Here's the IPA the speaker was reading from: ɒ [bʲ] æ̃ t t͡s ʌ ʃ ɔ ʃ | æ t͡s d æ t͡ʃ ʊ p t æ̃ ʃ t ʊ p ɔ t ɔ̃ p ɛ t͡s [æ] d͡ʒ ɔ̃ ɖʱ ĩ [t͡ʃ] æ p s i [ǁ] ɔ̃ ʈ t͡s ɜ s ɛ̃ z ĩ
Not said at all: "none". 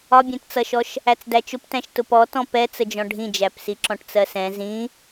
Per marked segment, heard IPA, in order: bʲ, ə, d͡ʒ, ǁ

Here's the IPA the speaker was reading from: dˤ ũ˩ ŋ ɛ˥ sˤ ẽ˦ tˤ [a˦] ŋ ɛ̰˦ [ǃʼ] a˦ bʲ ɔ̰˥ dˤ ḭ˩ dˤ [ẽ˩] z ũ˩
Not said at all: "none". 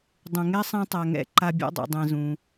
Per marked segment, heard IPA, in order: a˨, ǃ, ẽ˨

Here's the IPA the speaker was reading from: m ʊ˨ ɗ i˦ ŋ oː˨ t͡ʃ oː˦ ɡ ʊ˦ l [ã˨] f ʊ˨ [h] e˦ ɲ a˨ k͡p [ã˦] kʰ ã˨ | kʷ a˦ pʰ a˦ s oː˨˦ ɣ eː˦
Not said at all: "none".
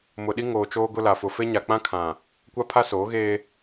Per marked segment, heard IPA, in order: a˨, f, ã˦

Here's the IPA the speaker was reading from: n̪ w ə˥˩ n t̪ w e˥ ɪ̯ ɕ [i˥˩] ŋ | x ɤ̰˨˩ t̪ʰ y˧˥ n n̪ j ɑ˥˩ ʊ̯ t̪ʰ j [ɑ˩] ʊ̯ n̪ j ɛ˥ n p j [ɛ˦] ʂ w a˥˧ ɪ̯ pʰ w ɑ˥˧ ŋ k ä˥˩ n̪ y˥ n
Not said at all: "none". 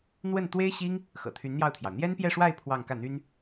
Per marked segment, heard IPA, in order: i˥, ɑ˩, ɛ˥˧

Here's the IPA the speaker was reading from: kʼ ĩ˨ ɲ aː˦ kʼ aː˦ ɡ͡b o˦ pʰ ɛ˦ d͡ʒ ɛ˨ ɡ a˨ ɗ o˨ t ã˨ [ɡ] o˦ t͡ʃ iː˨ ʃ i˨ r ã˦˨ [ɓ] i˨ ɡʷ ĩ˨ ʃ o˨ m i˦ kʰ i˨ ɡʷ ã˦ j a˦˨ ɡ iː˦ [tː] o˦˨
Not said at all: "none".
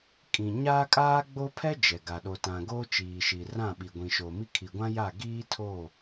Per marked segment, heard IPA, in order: ɡ, ɓ, tʰ

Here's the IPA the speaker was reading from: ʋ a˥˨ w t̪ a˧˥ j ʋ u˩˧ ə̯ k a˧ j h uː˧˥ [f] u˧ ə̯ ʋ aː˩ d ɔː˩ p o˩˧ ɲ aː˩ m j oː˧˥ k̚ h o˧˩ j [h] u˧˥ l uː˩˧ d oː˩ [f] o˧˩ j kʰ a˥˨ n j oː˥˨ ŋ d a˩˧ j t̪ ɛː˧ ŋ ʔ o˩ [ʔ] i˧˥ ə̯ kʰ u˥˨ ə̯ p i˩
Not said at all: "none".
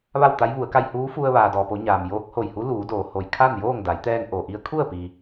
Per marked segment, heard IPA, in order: f, h, h, ʔ

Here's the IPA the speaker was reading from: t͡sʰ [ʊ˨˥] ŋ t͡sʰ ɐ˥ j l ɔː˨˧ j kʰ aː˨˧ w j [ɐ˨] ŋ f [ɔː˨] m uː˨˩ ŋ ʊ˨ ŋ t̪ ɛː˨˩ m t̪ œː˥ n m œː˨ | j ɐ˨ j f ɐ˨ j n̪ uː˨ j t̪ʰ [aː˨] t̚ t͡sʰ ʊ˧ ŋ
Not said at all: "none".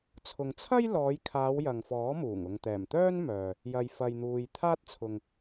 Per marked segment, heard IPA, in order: ʊ˨, ɐ˨, ɔː˨˥, aː˥

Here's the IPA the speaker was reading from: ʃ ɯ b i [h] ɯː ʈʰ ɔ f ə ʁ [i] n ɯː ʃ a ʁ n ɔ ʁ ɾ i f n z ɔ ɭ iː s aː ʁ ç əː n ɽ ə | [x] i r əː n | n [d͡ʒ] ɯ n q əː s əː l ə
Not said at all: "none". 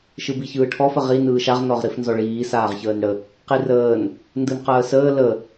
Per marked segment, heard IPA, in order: ç, i, q, d

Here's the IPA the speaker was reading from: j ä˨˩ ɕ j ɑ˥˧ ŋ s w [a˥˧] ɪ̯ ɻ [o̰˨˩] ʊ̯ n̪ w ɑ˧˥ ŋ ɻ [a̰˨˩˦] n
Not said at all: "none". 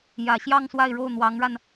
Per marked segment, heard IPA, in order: a˥˧, o˥˩, a˧

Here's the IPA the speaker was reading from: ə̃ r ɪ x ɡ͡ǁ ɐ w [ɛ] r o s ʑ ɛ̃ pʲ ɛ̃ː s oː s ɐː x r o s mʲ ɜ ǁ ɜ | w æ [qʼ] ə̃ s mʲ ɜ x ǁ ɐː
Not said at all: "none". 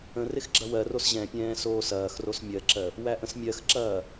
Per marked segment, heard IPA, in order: ɜ, ʔ

